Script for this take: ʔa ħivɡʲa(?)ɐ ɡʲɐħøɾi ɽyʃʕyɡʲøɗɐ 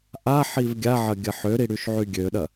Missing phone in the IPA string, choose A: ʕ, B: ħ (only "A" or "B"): A